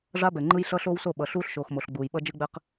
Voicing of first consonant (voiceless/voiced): voiced